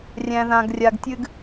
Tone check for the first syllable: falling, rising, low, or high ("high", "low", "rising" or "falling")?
low